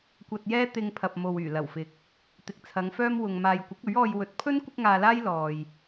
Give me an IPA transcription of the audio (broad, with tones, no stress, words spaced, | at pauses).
kʷɐ˧t̚jɛː˥ t̪ɪ˧ŋpʰɐ˨p̚ mo˨wyː˨˩lɐ˨˩wfɪ˨k̚ | t̪ɪ˨k̚t͡sʰɐ˨˧ŋfœː˥mwʊ˨ŋ maː˨jkʷɪ˨˥k̚ɵ˨˥ɥɔː˧j wɵ˨˥t̚pʰɵ˥n kʷɪ˥k̚ŋaː˧laː˥j lɔː˨j